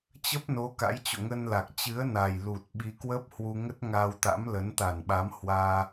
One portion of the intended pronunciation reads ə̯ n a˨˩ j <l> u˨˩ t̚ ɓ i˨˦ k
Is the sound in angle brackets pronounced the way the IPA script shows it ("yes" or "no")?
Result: yes